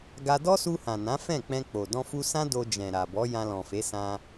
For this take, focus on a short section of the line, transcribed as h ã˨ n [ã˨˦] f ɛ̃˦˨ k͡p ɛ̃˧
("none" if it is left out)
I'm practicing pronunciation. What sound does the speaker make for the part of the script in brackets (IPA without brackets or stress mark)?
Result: ã˨˦